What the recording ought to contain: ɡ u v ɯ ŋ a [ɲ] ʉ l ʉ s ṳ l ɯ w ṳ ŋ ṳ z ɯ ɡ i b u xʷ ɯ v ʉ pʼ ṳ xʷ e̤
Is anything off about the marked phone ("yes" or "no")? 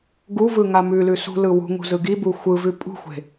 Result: yes